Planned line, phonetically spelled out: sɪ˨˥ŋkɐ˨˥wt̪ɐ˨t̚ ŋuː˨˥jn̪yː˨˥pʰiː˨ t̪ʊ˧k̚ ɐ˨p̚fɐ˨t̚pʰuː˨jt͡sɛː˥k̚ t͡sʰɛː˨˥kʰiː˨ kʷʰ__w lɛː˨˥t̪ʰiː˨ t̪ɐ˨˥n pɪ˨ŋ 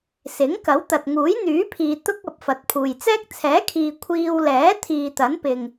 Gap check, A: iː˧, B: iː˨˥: A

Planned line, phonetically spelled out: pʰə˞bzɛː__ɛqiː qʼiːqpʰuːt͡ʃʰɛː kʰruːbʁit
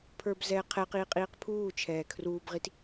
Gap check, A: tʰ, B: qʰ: B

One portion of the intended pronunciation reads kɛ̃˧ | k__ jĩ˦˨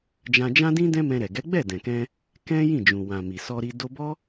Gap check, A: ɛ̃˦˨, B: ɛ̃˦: B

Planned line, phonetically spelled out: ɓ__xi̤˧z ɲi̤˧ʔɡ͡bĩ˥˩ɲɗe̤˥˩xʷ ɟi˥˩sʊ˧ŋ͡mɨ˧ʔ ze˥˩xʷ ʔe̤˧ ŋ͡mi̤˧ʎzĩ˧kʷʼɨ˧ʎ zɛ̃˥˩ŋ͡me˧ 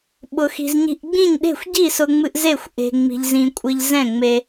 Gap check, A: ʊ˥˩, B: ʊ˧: B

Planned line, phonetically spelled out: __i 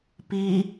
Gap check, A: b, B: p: B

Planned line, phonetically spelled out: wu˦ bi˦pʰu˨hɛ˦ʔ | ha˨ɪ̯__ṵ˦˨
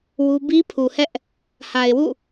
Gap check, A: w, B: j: A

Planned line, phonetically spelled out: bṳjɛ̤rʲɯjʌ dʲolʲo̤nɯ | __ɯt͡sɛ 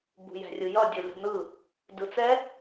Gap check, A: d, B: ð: A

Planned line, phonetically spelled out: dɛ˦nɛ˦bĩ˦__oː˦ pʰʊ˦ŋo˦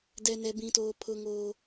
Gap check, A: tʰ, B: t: B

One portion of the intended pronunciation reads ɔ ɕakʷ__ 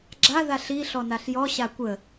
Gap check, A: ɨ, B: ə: B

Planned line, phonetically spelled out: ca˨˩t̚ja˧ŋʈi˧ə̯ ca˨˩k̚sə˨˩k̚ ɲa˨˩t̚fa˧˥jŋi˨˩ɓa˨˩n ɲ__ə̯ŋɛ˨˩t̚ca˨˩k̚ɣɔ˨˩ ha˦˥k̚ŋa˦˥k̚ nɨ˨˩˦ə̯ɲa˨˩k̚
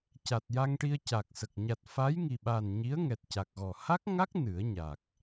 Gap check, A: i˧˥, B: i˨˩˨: A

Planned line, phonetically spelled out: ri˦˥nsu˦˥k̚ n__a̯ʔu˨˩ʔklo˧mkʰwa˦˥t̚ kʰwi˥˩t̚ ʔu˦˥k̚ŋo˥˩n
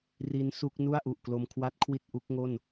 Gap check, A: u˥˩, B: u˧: A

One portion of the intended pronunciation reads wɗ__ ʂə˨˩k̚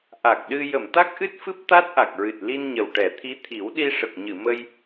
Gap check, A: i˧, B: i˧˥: A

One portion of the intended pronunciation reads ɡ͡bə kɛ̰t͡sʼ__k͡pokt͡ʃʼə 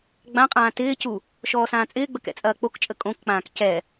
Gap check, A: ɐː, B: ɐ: A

